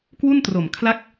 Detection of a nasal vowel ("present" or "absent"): absent